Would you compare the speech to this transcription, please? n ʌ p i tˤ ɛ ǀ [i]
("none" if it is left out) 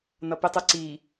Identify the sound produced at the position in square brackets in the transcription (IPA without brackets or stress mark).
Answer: i